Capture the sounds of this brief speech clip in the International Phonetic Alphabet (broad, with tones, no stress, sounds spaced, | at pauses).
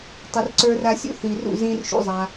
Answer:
tˤ ə˧ r ǀ ə˞˦ r a˧ sʲ ṵ˦ θ i˨ r ṵ˦˨ z ĩ˦ r ʃ ṵ˦ zˤ a˧